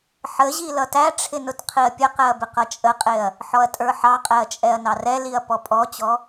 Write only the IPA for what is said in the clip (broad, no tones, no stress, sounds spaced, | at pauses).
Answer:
ħ ə ʑ i l ʌ t æ ʈ͡ʂʰ ɪ n ʊ t qʰ i ɐ̯ pʲ ə q ɛ ɐ̯ b ɪ q ʌ t͡ʃʼ ə qʼ ɪ ɐ̯ | ħ ɔ ɐ̯ tʼ ə˞ ħ ɑ qʼ ɛ ɐ̯ t͡ʃʼ ɛ ɐ̯ n ɑ r ɛ l i ɐ̯ p ɔ pʼ ɔ t͡ɕ ɔ